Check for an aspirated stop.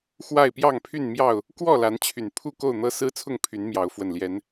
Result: present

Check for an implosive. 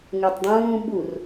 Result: present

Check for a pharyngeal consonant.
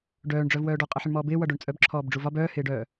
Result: present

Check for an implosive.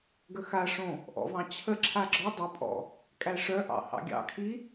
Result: absent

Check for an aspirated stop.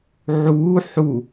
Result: absent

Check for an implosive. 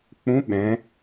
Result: present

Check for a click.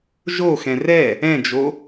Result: absent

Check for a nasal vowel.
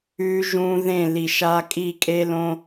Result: present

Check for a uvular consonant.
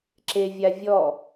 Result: absent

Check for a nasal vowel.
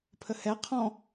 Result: present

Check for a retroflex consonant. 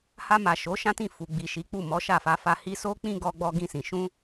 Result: absent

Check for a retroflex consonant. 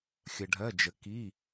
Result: present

